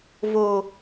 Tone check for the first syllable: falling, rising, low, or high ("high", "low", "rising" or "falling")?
low